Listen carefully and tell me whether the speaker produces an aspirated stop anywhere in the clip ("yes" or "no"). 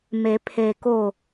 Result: yes